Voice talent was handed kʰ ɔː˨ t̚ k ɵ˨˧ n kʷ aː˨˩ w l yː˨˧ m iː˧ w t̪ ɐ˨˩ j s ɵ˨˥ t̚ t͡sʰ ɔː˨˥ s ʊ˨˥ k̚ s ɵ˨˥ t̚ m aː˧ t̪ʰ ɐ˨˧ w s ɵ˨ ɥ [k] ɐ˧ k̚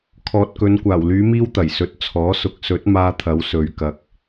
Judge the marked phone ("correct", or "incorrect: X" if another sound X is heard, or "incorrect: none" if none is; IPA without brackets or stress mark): correct